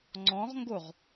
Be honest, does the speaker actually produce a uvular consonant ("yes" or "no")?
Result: yes